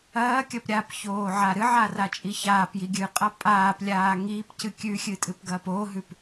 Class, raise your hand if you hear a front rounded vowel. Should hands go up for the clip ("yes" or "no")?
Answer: no